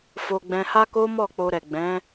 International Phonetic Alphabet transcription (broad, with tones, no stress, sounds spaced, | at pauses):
f o˧ ɡ͡b ɛ̃˧ h a˦ k o˦ m ɔ˦˨ k͡p o˧ ɾ ɛ˨ ɡ͡b ɛ̃˨˦